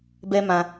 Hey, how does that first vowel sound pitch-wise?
high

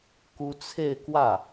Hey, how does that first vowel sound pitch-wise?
high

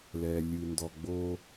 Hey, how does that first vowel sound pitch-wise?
low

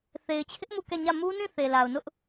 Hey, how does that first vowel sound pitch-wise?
low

